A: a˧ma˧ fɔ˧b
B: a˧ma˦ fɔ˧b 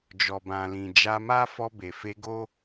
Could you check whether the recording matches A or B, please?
B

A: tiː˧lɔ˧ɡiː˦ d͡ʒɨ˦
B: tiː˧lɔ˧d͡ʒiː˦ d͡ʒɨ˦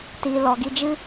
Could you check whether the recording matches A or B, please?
A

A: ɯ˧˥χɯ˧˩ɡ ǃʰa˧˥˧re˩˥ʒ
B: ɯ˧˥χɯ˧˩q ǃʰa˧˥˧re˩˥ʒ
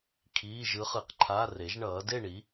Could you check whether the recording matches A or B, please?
B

